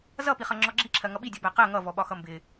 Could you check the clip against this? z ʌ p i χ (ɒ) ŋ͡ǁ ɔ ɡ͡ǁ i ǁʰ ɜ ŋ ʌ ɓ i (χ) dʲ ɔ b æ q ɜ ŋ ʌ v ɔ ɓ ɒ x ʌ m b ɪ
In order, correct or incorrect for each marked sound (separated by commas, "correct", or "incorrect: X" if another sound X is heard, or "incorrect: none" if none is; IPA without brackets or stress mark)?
incorrect: ʌ, incorrect: none